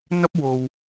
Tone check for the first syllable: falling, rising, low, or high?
high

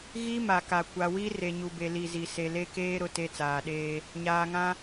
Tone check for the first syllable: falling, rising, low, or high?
high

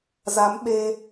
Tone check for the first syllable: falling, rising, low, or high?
rising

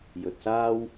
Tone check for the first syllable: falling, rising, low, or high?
low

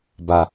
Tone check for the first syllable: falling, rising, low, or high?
low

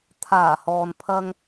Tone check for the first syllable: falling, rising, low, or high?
low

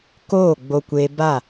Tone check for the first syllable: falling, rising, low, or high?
falling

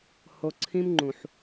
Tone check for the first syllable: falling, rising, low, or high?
low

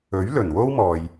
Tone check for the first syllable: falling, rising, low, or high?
rising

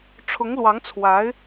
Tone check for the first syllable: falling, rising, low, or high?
rising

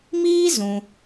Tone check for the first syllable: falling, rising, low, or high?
high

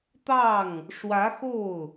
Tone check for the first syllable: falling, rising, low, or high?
falling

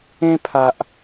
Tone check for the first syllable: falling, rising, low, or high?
high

